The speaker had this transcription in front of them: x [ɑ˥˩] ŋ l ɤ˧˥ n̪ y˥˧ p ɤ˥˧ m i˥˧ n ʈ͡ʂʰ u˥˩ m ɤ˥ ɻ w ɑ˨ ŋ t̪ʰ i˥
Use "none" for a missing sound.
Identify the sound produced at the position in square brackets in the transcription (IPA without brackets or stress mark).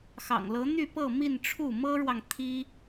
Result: ɑ̰˨˩